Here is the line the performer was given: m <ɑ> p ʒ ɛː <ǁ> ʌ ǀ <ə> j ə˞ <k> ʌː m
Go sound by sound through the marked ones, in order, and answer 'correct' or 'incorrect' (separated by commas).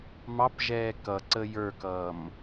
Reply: correct, incorrect, correct, correct